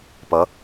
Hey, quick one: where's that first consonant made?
lips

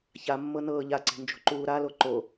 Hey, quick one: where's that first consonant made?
palate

